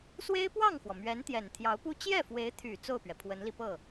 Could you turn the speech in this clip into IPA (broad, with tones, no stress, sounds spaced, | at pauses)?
s w e˥ ɪ̯ p w ɑ˥˩ ŋ x w ɔ˩ m ɥ ɛ˧˥ n t̪ j ɛ˨˩ n t̪ʰ j ɑ˧˥ ʊ̯ p u˥ t͡ɕ j ɛ˥˩ f w e˧˥ ɪ̯ t̪ʰ y˨˩ t͡s o˥˩ ʊ̯ p ɥ ɛ˩ pʰ w ə˧˥ n l i˧ p ɤ˥˩